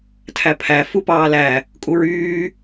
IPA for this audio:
tʰ æ pʰ æ f u p ɑː l æ | kʼ u ɹ yː

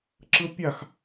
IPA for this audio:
ǁ ɯ pʲ a x

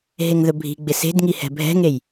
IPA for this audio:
ɦ e ŋ ð ɵ bʱ i̤ ɡ͡b ɪ s e̤ d ŋ i h ɛ̤ bʱ ɛ̤ ŋ e j

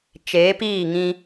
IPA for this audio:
t͡ʃ eː˨˦ p iː˦˨ ŋ ĩ˦

